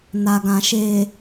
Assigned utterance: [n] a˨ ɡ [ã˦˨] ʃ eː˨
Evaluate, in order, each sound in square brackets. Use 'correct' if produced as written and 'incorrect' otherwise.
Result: correct, incorrect: ã˨

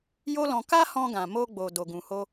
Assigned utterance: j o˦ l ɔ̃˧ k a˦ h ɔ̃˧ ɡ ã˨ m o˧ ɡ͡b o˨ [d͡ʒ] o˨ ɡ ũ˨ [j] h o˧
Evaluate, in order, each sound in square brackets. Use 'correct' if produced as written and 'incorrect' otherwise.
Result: incorrect: d, incorrect: none

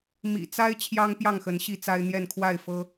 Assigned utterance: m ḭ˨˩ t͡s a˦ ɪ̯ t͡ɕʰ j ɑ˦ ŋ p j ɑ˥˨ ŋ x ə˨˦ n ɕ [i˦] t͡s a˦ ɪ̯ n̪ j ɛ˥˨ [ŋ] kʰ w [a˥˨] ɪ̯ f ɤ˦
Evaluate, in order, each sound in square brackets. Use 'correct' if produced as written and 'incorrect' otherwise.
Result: incorrect: i˥˨, incorrect: n, correct

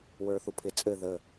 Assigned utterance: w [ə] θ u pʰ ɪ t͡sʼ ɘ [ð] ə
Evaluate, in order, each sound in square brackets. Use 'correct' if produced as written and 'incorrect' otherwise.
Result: incorrect: ə˞, correct

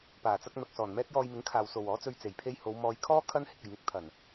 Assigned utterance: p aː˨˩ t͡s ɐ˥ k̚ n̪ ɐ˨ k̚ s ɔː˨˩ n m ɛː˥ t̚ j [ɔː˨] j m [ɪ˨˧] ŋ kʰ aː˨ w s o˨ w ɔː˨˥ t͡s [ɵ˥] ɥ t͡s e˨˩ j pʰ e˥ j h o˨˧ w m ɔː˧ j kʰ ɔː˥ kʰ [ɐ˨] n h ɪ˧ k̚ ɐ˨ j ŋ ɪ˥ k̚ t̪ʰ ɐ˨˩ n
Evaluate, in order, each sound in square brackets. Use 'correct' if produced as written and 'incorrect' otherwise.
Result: incorrect: ɔː˧, incorrect: ɪ˨˥, incorrect: ɵ˧, incorrect: ɐ˥

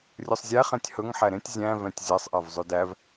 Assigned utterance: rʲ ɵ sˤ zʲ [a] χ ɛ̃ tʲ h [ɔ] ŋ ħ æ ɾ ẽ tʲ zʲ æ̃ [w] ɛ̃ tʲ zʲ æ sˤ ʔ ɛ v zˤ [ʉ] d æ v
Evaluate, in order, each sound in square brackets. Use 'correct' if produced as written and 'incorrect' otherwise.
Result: incorrect: æ, incorrect: ɵ, incorrect: v, correct

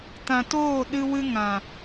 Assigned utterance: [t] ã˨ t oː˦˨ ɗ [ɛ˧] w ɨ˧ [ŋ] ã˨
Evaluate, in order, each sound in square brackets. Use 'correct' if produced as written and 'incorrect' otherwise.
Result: correct, incorrect: ɨ˧, correct

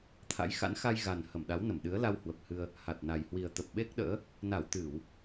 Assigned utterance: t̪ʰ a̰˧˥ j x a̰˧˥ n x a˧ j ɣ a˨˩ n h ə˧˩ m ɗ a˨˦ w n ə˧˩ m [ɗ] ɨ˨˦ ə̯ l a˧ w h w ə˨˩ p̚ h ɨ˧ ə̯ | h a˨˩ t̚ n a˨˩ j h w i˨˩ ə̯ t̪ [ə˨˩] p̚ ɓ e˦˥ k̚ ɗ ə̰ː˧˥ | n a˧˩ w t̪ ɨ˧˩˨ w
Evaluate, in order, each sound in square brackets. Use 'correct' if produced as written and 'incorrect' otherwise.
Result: correct, correct

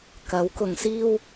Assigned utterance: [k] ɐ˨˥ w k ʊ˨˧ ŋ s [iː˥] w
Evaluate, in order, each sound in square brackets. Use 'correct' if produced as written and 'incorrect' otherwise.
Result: correct, correct

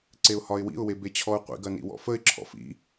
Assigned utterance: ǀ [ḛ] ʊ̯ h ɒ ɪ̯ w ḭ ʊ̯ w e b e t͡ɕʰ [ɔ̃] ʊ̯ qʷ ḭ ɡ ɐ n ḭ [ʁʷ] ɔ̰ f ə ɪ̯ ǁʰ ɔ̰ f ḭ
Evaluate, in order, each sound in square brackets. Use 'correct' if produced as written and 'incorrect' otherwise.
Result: incorrect: e, incorrect: ɔ, incorrect: w

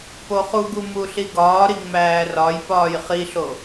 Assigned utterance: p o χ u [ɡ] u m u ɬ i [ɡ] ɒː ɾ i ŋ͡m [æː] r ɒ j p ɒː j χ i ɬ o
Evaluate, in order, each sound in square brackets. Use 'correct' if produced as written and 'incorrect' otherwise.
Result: correct, correct, correct

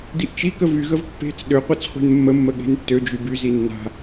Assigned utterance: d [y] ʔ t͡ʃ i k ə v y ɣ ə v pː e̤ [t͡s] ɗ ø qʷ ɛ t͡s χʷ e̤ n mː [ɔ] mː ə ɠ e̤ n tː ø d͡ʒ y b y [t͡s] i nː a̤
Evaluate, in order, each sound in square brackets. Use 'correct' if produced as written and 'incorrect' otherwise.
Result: incorrect: i, correct, incorrect: ə, incorrect: z

